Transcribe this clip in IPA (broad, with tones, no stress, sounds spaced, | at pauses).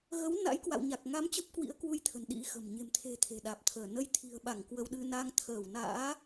ɣ ə˨˦ w n a̰˧˥ j k w a̰˧˨ w ɲ a˨˩ k̚ ŋ a˨˦ m t͡ɕ ə˦˥ p̚ k w ḭ˧˥ ə̯ k w u˧ j t̪ʰ ə̤˨˩ n ɗ ḭ˧˥ x ə̤˨˩ m ɲ e̤˨˩ m t̪ʰ e̤˨˩ t̪ʰ e̤˨˩ ɗ aː˨˩ p̚ t̪ʰ əː˧˩ n ə˨˦ j t̪ʰ i̤˨˩ ə̯ ɓ a˧˩ ŋ k w ə˧ w ɗ ɨ˧ n a˧ ŋ t̪ʰ əː˧˩ w n a̰ː˧˥